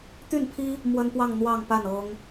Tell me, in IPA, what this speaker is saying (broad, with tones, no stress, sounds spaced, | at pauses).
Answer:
t̪ y˥˩ n pʰ i˥ | m w ə˥ n p w ɑ˥˧ ŋ n̪ w ɑ˥˧ ŋ p a˥˩ n ɤ˥ ŋ